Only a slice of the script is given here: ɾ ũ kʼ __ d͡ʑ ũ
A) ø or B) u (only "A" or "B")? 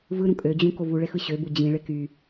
A